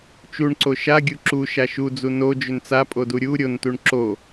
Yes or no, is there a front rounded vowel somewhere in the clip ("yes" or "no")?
yes